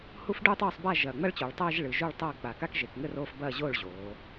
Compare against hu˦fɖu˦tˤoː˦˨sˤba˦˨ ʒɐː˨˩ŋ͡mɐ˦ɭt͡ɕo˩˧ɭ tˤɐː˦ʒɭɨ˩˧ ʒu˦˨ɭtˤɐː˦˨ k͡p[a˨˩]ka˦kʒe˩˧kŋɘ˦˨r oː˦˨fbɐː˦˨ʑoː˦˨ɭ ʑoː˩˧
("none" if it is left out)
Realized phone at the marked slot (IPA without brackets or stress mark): a˨˩